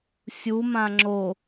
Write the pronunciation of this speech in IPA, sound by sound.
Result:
sʲ u m ã ŋ͡ǁ o

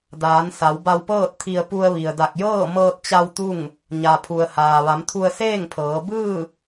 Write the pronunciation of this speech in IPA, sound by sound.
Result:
d aː˩˧ n s a˩˧ w b a˧ w p ɤː˥˨ t̚ t̪ʰ i˧ ə̯ p u˧ ə̯ ʋ i˩ ə̯ d a˧˩ k̚ j ɤː˥˨ m ɤː˧ t̚ t͡ɕ a˧ w t̪ u˥˨ ŋ | ɲ a˩ pʰ u˩ ə̯ h aː˩ ʋ a˩˧ m t̪ʰ u˧ ə̯ s eː˥˨ ŋ pʰ ɤː˩˧ b ɯː˥˨

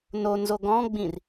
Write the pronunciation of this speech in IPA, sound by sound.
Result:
n o n z o ɡ ɔ̃ ɡ͡b ĩ r

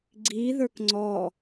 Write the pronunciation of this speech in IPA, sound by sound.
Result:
ɡ͡ǀ i ð ə˞ k ŋ͡ǀ ɔ

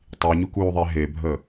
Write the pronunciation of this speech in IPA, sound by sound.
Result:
tˤ i ɲ u k uː ðˤ e ɦ e bʱ əː

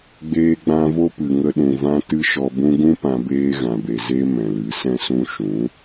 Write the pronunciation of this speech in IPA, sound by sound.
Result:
ɡ͡b eː˧ ɡ͡b ã˧ v o˦ p ɨ˨ ŋ ə˧ ɗ ũ˨ v ã˧ t ɨ˧ ʃ ɔ˨ b ũ˧ ɡ ũ˦ p ã˧ b eː˦ ɣ ã˨ b e˨ z e˧ m ɛ̃˨ l ɨ˨˦ s ɛ̃˦ s ũ˦ ʃ ũ˨˦

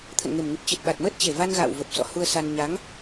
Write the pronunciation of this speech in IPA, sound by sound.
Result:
t̪ʰ ə̰˧˨ n ŋ e˨˩ m ŋ ɨ˨˩ p̚ t͡ɕ ɨ˨˩ t̚ ɓ a˨˩ t̚ m əː˦˥ t̚ t͡ɕ e˨˩ v a˧ n ɣ a̰ː˧˨ w v ə˨˩ p̚ s ɔ̰˧˨ h u˧ ə̯ s a˧ n ɲ a˨˦ ŋ

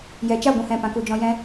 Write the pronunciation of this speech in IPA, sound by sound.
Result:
j ɛ˨ t͡ʃ a˦˨ ɡʷ ũ˧ h ɛ̃˧ p ã˨˦ k u˧ d͡ʒ ɔ̃˦ j ɛ̃˦

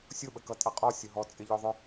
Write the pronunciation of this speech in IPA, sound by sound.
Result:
sʲ ʊ ɓ ə k ʌ tʼ ʌ qʼ ɔ sʲ ʊ ɦ ɔ t͡sʼ ɪ ʎ ɔ ðˤ ʊ

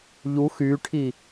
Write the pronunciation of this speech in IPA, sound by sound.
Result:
ʎ u x y ʈʰ i

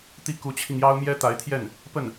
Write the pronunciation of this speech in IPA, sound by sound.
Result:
t̪ i˥˩ k u˧˥ t͡ɕʰ i˧ ŋ j ɑ˥ ʊ̯ m j ɛ˥ t̪ a˧˥ ɪ̯ t̪ʰ j ɛ˥˩ n | p ə˥˩ n

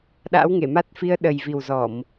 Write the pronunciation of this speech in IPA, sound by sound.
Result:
ɗ a̰˧˥ w ŋ e˧˩ m a˦˥ t̚ f i˧ ə̯ ɗ ə˨˩ j v i˨˩ w z ɔ˧˩˨ m

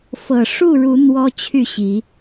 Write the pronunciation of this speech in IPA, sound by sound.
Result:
f ɤ˨˩ ʂ u˥˨ ɻ u˨˦ n̪ w ɔ˦ t͡ɕʰ y˥˨ ɕ i˨˦

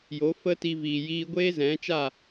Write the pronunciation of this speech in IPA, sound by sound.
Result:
j o˨˦ f ə˦ t i˧ v iː˨ j iː˦ ɡʷ eː˦ z ɛ̃˨˦ t͡ʃ a˦˨

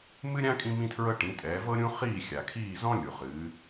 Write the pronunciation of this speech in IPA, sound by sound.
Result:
m ɨ˥ ɾʲ ã˥ kʼ ĩ˥ m ĩ˥ tʰ ɹ ɤ˥ ʈ ĩ˩˥ tʼ ɛː˩˥ v ɤ˥ ɾʲ ũ˥ χ iː˥˩ xʲ a˩ kʰ iː˥˩ z ɔ̃˥ lʲ u˩ χ ɨː˩˥

